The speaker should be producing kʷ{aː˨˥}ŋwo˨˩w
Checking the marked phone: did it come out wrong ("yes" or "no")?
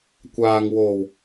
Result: yes